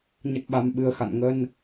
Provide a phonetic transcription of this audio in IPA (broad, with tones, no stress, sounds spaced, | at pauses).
ɲ ə˨˩ t̚ ɓ a˨˩ m ɓ ɨ˨˩ ə̯ x a̰˧˨ n ŋ ə˧ n